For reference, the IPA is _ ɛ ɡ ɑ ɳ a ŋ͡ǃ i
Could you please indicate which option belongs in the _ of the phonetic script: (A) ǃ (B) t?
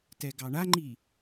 B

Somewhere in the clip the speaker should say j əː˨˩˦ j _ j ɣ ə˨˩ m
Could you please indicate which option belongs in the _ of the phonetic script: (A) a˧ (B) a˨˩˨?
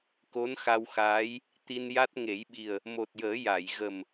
B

